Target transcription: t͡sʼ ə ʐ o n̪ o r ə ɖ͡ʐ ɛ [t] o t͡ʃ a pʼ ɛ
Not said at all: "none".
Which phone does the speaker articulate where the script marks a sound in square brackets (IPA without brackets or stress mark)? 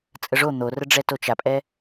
t